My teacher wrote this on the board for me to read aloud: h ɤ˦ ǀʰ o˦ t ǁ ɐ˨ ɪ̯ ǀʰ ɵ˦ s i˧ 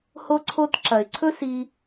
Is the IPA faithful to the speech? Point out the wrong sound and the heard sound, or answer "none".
ɤ˦ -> o˦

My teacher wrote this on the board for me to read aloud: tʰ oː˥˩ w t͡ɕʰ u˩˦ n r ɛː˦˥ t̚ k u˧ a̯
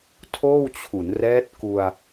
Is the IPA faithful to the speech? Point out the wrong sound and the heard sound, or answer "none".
none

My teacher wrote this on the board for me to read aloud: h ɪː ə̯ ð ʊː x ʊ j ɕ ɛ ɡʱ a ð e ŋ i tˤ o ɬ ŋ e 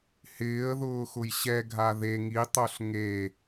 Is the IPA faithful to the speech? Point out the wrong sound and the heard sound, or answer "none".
none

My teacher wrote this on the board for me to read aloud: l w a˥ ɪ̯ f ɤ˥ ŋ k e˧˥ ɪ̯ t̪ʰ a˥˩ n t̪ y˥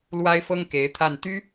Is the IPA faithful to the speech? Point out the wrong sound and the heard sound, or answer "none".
none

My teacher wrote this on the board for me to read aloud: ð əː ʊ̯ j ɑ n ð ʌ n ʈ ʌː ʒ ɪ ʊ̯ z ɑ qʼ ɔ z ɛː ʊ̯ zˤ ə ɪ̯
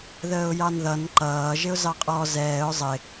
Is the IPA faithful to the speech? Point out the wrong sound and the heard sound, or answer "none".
ʈ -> ǃ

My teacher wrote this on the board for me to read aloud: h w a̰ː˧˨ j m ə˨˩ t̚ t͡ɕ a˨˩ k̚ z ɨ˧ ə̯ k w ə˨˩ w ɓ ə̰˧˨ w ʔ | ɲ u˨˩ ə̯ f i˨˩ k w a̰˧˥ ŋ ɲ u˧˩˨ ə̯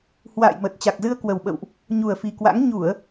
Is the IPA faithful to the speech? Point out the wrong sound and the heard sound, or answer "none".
none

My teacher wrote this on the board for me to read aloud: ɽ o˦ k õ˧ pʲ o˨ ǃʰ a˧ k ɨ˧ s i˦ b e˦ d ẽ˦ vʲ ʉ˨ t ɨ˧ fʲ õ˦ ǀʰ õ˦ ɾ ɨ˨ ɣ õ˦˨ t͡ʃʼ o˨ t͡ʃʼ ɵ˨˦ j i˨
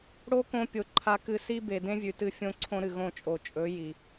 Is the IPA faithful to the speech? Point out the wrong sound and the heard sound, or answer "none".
e˦ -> e˨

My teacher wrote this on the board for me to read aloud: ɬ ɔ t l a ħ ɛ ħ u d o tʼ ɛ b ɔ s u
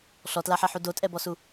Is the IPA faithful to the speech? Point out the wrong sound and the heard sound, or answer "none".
none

